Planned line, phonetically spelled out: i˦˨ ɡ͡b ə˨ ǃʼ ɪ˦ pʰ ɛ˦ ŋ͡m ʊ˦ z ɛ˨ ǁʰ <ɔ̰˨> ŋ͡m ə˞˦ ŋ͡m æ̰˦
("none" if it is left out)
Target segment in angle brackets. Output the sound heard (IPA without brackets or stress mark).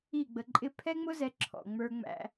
ɔ̰˨